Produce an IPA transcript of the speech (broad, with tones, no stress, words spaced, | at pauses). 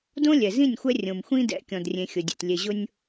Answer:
dõ˦lʲɛ˨zĩ˦˨nʲxʷɛ˦ rʲõ˨mxʷĩ˦ dɛ̰˨˦kʲɔ̃˨drʲẽ˨ xʲʊ˨dʲḛ˨tlʲe˨ʑʊ˦nʲ